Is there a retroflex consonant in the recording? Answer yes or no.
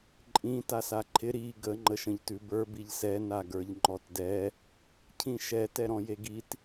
no